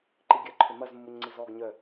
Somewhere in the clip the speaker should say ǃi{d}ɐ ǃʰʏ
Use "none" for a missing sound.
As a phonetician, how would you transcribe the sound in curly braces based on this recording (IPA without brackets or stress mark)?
ɡʲ